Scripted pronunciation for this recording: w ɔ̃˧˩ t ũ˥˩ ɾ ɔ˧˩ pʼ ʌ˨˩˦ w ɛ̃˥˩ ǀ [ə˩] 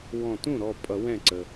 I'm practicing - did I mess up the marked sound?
no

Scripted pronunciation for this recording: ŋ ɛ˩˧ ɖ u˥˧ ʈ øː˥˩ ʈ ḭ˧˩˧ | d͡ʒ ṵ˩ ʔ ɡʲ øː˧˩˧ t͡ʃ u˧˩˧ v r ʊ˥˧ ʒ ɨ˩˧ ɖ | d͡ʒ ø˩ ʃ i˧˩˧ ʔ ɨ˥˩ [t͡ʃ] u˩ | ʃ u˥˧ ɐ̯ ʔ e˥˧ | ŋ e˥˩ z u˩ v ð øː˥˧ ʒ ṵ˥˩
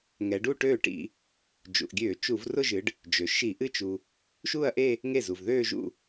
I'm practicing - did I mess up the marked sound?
no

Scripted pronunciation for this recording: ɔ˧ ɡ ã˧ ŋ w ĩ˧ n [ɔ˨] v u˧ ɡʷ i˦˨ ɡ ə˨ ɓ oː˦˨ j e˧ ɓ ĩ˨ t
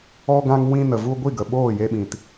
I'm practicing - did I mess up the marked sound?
yes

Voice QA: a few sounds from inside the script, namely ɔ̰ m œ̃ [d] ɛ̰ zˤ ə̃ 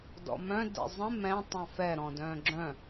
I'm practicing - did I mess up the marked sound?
no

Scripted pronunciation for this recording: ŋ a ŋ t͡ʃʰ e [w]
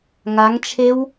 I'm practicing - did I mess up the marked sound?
no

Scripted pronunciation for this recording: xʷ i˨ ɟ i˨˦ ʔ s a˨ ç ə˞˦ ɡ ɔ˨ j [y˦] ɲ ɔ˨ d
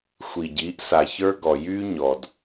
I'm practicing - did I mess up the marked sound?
no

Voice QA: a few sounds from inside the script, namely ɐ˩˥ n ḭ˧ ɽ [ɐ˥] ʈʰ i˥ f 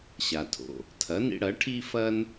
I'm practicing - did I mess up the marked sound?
yes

